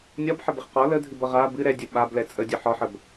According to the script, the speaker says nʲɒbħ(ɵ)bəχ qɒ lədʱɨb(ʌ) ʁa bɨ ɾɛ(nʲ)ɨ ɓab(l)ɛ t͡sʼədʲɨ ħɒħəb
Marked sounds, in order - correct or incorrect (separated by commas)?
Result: incorrect, correct, incorrect, correct